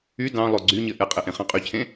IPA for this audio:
y d ɑ̃ lˠ o ɡ͡ǀ y ɲ ɘ ʔ ɛ qʼ ɘ ʔ ẽ χ ɑ̃ qʼ y cʰ ẽ

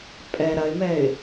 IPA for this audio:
pʼ ɛ ɾ ɐ ɪ̯ m ɛ ɪ̯

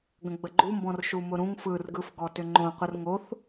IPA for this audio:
ɡ ə̃ ɡ͡b ə ɡ͡ǃ u m b ɔ̃ r ʃ u m ʊ ɾ ũ ŋ f ɯ r ɡ ɯ f ɡ ɔ t ʏ ŋ͡ǃ õ qʷ ɯ r ŋ o θ

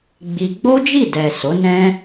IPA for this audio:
ɡ͡b i˧ ɡ͡b o˦ d͡ʒ i˦˨ d ɛ˨ s o˨˦ n ɛ̃˦

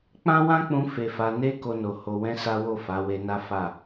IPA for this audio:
k͡p ã˦ w ã˦ k͡p ũ˧ f e˧ f a˧ n e˦ k o˦ n o˧ h o˧ w ɛ̃˦ s a˦ w o˦˨ f a˨˦ w e˧ n a˦ f a˦˨

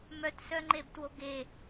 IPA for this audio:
m œ t s œ ŋ͡ǃ e b t w o ɡ e

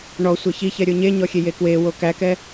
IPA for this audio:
ɳ ɔ sʷ ɛ ç i ç ɛ ɾʲ o ɲ e ɲ ɔ xʲ e j e k w e w o k æ k ɛ

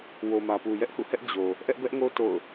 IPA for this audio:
w o˨ m ä˨ p u˨ j ɛ˦ ʔ h ṵ˦˨ h ɛ˦ ʔ d͡ʑ o˨ | ʔ ɛ˦ ʔ b ɛ˦ ʔ ŋ o˦ t o̰˦˨ ʊ̯

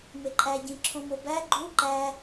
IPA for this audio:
m e ǃʼ æ ɟ ĩ ǁʰ õ m o b æ ɡ͡ǃ u ǃ æ

